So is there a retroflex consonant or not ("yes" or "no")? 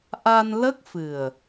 no